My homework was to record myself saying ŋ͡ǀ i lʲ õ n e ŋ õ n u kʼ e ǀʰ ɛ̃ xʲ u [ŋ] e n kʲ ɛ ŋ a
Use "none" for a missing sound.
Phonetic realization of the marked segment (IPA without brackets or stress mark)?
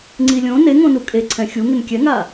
ŋ